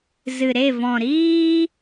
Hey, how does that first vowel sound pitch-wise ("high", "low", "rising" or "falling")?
low